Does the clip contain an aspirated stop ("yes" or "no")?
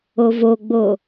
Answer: no